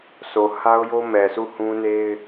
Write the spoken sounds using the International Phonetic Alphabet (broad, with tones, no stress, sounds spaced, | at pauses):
sʰ o˨ h a˦ ʊ̯ j o˦ m ɛ˨ s u˦˨ h ũ˦ n e˦ ɪ̯